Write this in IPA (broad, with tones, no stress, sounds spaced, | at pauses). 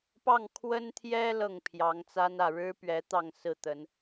p ɑ˥˨ ŋ kʰ w ə˦ n t̪ʰ j ɛ˦ l ɤ˥˨ ŋ pʰ j ɑ˨˦ ŋ t͡s a˦ n ä˥˨ ɻ ɻ̩˦ p ɥ ɛ˨˦ t̪ ɑ˥˨ ŋ s ɹ̩˥˨ t̪ ə˨˦ n